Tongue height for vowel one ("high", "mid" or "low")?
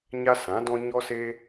low